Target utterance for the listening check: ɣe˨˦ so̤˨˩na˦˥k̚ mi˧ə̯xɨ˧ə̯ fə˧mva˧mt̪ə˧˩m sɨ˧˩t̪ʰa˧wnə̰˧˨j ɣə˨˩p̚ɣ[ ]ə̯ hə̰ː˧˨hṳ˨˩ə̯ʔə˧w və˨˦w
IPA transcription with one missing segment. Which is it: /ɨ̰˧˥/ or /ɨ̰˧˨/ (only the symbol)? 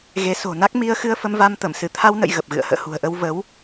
ɨ̰˧˨